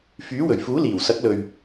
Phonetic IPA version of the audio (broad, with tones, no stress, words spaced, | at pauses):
fyː˨˥wɵ˨˩ɥfuː˨˥ liː˨˩w sɐ˨˥k̚lɵ˨ɥ